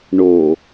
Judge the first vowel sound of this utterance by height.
mid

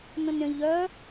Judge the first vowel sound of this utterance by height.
mid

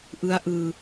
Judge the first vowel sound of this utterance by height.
high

